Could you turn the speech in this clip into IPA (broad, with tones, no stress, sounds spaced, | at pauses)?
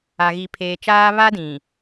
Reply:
a˨ ɣ i˨ pʰ eː˨ t͡ʃ aː˦ β a˦ d ĩ˨